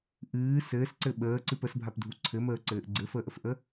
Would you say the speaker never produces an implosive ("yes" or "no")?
no